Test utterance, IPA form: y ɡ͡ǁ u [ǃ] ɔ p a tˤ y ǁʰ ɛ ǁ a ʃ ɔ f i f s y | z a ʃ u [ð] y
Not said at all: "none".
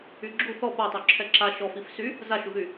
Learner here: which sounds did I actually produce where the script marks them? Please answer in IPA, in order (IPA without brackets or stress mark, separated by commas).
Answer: θ, ð